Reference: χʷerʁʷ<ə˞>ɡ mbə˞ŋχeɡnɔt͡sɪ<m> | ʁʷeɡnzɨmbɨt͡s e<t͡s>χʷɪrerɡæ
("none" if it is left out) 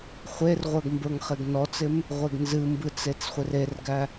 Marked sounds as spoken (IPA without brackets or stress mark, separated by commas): ə˞, m, t͡s